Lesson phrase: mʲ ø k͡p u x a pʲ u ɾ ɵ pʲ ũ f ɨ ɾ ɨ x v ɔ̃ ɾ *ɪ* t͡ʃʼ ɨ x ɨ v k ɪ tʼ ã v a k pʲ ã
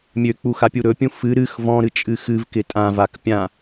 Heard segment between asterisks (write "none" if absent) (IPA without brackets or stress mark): ɨ